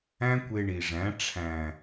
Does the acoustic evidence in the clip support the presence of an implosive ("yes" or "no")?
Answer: no